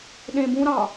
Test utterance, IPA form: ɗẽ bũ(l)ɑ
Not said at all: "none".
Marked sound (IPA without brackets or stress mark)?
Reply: ɾ